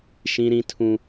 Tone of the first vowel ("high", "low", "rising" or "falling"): high